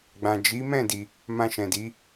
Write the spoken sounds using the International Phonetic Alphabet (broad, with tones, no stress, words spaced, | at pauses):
ɡ͡bã˨d͡ʒi˨˦mɛ̃˦˨ di˧ | mã˧ʃɛ̃˨di˨˦